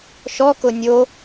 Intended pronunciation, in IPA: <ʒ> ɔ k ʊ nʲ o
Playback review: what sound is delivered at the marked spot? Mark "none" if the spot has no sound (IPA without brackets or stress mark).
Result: ʃ